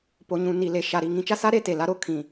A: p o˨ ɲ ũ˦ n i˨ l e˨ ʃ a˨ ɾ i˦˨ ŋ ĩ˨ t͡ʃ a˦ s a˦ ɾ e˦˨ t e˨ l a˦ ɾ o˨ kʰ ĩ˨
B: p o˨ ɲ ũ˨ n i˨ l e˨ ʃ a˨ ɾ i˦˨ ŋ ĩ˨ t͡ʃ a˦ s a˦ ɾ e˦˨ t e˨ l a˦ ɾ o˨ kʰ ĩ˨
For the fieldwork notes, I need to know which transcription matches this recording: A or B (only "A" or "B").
B